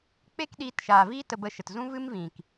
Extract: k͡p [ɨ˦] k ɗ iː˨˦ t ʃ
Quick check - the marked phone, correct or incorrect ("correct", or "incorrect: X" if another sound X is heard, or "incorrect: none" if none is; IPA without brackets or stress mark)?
incorrect: e˦